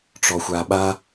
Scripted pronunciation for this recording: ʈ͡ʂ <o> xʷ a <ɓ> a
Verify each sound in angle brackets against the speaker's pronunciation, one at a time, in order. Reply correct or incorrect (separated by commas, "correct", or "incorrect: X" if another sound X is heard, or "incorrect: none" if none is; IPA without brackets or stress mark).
incorrect: ɔ, correct